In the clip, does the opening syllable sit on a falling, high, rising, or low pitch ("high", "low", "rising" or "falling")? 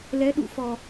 rising